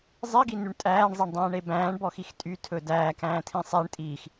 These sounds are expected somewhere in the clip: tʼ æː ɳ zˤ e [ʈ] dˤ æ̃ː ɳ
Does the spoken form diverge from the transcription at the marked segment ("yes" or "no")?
yes